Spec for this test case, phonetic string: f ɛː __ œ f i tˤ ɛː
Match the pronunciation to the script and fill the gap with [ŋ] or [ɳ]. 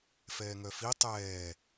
ŋ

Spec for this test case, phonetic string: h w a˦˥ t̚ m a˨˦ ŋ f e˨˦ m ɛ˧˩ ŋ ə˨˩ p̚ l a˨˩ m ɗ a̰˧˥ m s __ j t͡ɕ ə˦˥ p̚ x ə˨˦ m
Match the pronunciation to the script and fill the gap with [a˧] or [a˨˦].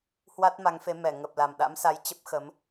a˨˦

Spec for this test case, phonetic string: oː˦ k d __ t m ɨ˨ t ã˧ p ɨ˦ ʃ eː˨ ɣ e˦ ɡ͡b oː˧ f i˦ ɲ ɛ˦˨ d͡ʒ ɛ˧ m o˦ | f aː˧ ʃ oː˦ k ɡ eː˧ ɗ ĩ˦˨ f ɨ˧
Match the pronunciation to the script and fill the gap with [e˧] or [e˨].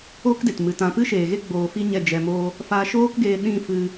e˨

